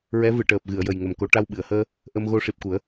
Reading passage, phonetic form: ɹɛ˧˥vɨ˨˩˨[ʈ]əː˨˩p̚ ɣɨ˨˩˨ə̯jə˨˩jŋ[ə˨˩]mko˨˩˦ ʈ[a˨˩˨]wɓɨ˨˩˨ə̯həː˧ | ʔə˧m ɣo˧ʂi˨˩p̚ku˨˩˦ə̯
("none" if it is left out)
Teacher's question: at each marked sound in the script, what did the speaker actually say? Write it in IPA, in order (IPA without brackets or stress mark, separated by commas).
ʈ, ə˨˩, a˧